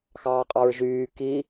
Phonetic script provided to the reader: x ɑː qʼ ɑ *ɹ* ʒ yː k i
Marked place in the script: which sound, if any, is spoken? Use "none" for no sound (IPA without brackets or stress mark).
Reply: ɹ